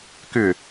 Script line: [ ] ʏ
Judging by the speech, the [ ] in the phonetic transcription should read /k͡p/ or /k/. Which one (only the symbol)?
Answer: k